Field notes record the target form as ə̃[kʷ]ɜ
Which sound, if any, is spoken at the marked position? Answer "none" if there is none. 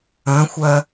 xʷ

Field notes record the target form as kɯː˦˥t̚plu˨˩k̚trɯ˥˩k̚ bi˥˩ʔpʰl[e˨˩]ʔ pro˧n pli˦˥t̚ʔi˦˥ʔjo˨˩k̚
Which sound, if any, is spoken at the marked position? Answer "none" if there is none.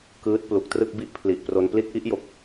i˨˩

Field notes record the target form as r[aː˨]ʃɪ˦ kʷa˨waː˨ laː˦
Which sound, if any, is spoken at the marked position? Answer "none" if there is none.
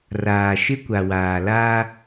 aː˨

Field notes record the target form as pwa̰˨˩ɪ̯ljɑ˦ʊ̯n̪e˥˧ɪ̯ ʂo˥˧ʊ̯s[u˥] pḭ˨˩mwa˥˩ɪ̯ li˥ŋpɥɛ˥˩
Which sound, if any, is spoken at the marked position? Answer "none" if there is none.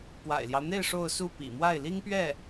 u˥˩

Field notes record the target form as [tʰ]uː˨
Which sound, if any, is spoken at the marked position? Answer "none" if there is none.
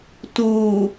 t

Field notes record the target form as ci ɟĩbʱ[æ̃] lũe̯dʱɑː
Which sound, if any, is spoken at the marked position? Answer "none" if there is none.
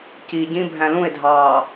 æ̃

